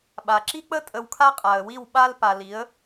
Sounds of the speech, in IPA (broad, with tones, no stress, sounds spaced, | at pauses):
ɓ a˨ ǁ i˦ k͡p ə˦ tʼ ə˧ w kʰ a˦ qʼ a˨ ə̯ w i˦˨ w ɓ a˦ l p a˨ l i˨˦ ə̯